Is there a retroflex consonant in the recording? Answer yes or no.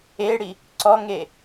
yes